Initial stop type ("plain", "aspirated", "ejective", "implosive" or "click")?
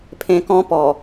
aspirated